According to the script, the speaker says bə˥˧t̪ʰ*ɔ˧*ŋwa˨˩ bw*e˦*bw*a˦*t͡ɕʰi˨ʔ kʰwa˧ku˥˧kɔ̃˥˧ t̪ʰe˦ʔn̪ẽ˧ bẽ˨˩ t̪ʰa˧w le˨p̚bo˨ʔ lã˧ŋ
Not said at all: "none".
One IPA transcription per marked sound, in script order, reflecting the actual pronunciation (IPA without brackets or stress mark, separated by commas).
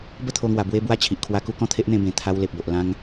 o˧, e˦, a˦